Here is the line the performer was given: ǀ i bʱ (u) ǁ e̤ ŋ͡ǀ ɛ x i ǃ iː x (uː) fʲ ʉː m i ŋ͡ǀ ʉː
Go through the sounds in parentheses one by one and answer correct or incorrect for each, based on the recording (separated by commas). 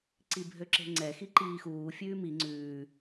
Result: incorrect, correct